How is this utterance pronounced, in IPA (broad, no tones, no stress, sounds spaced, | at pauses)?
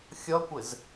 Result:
xʲ ʌ kʷ ɪ z